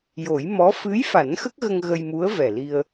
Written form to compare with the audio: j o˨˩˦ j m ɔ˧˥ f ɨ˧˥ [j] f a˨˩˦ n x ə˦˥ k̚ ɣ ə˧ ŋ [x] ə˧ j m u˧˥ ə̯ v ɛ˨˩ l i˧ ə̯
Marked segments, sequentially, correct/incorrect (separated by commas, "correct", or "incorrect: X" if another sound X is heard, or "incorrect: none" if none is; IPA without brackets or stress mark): correct, incorrect: ɣ